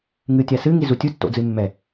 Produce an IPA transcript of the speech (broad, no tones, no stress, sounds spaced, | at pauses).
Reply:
ŋ ɨ tʲ a s ɨ ŋ i z u tʲ u tː o̰ d͡z ɨ mː ɛ